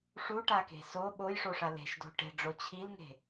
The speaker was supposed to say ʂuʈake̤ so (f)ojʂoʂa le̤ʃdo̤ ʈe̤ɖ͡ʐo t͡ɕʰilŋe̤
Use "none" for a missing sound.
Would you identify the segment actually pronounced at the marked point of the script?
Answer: ɓ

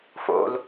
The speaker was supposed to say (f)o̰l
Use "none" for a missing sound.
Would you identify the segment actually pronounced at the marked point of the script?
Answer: f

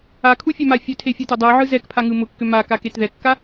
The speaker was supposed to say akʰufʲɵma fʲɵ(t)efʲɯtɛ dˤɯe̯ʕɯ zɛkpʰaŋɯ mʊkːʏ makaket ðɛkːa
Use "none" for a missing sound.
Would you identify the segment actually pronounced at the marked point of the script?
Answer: tʰ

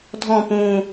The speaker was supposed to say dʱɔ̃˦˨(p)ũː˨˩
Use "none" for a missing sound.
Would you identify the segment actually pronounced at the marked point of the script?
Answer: p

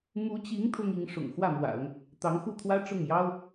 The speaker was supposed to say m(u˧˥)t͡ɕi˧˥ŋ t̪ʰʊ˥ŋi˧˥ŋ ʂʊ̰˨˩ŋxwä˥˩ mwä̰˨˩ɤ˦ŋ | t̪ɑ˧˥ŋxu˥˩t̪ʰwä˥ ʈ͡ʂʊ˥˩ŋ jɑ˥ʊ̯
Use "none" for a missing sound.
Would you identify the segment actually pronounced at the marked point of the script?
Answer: u˧˥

